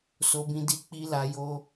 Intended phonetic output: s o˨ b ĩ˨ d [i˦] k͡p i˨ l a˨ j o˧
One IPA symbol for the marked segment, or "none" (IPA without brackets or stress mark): i˨